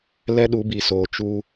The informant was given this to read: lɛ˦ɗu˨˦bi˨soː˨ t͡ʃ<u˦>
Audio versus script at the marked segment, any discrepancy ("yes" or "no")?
no